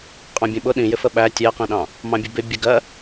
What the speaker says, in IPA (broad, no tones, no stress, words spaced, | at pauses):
qʼɑ̃bʲə̃ɓʊ ɗĩjɪ fəɓæ tʲɛqĩɗɑ̃ | mɑ̃bʲʊbɪ bʲəɡɜ